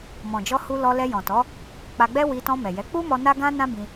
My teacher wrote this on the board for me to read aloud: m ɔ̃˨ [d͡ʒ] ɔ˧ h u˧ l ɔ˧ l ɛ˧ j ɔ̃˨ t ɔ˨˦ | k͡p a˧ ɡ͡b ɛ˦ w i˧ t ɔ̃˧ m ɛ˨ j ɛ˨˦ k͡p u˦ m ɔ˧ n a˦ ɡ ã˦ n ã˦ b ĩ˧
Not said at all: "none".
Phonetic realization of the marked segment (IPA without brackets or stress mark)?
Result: d͡ʒ